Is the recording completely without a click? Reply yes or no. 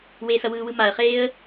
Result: yes